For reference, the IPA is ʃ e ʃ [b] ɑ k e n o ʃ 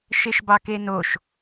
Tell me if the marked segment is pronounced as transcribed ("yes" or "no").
yes